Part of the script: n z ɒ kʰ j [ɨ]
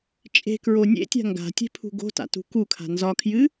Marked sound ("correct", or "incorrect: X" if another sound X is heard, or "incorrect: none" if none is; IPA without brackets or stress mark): correct